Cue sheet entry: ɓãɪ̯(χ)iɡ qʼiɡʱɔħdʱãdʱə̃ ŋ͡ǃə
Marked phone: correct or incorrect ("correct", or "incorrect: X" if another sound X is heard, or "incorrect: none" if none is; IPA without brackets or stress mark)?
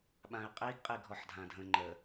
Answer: incorrect: qʼ